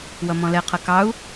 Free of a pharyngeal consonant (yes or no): yes